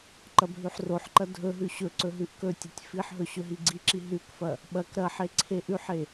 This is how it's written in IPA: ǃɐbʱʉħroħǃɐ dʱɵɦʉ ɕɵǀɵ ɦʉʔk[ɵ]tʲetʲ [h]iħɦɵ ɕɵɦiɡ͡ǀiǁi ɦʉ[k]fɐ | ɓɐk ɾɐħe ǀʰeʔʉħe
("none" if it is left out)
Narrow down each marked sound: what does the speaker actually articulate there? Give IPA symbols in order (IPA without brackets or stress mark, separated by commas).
ɵ, f, k